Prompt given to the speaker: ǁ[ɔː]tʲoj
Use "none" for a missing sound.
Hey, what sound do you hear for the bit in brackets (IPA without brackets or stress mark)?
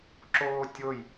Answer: oː